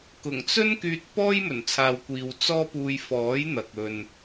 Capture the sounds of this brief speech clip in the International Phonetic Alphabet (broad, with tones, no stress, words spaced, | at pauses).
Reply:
kʊ˨˩ŋt͡sɵ˥n kyː˧t̚pɔː˥j mɵ˨˩nt͡sʰaː˨wkʷiː˨w t͡sɔː˥puː˧j fɔː˨˥jn̪ɐ˨k̚ ɵ˨n